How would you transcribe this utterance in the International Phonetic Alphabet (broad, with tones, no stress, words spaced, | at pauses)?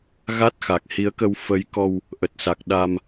ɣa˦˥t̚xa˨˩k̚hi˨˦ə̯kə˧w fə˨˦jkɔ˧w | ʔə˨˩t̚sa˨˩k̚ɗa˧m